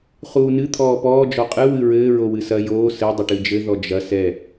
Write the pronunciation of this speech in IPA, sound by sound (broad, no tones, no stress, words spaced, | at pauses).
χuːnɨ t̪ʰɔːpɔː d͡ʒɔqʼɨ wɨɹɘː ɹowɨsɐ joː sɘ dˤɘʈɨd͡ʒɘ ðɔd͡ʒɐ sɛ